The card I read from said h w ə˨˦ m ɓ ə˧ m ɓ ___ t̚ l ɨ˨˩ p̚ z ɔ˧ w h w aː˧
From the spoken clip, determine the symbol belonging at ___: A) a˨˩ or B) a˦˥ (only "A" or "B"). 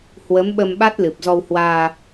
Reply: B